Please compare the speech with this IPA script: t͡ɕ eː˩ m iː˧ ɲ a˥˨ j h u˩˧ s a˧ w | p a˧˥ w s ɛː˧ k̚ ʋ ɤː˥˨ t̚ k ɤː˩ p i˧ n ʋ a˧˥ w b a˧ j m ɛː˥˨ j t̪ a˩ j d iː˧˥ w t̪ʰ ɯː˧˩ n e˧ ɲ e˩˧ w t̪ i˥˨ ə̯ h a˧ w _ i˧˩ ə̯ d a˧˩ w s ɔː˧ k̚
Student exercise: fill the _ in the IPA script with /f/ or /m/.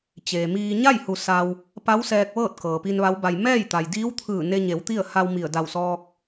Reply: m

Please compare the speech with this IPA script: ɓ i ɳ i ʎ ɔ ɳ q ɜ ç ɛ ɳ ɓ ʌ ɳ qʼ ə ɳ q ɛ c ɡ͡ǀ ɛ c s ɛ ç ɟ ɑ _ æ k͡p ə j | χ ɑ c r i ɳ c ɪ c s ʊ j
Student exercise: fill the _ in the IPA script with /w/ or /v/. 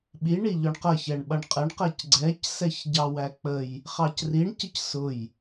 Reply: w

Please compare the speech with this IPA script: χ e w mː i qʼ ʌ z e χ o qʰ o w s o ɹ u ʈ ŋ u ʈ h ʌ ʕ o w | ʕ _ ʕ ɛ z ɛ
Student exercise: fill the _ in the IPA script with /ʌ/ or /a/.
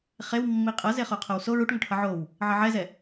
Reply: ʌ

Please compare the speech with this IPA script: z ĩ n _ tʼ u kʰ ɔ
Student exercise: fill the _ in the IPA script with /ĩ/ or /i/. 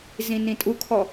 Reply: ĩ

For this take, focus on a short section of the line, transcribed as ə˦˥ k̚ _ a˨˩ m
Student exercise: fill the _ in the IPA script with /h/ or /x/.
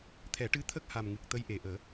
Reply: h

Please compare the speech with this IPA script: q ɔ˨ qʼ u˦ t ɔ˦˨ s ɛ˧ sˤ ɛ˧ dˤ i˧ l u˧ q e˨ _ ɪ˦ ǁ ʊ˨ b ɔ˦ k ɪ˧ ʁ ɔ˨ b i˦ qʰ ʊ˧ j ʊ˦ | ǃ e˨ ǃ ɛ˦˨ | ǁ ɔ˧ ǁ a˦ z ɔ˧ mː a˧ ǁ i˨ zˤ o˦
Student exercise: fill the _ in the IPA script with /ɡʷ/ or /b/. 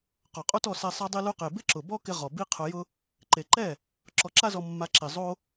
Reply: b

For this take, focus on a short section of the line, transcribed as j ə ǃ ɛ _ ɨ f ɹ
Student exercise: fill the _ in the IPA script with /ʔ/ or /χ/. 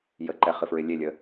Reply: χ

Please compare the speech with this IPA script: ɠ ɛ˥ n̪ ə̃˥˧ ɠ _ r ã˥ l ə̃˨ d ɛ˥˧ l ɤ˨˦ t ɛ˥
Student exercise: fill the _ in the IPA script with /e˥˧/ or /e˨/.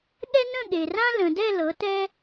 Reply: e˨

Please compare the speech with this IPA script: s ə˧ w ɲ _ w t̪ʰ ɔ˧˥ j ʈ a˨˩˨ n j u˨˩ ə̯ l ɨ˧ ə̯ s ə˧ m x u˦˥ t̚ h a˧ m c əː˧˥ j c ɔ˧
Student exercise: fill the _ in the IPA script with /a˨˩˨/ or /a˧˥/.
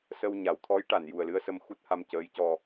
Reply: a˨˩˨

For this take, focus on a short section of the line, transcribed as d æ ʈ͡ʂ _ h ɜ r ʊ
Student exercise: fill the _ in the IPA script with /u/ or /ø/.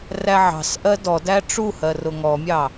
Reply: u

